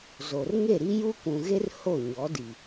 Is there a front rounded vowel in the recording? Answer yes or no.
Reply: no